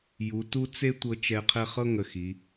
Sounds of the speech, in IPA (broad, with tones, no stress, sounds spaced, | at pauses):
j u˩˧ t u˥ t͡s e˥ tʷ ɤ˧ t͡ʃ ɛ˧ qʰ ɛ˥˧ χ ɤ˥ ŋ ə˧˩ x i˩˧